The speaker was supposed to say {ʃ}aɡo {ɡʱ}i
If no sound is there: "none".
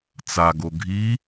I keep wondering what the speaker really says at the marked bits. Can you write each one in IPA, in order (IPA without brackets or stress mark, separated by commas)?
t͡s, ɡʱ